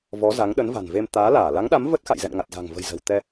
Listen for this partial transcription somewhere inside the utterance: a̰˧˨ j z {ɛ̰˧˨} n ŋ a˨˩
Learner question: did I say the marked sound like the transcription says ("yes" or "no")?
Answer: yes